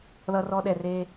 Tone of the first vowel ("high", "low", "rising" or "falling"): high